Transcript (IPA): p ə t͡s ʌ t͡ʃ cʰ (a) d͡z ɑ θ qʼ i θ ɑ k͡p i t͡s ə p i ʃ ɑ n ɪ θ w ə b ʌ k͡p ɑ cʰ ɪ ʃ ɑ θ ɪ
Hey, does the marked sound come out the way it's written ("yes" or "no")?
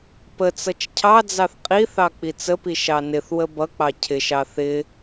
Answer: no